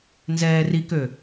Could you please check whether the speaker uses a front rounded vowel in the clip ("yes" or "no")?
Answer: yes